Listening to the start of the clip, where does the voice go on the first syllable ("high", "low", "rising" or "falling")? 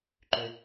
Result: low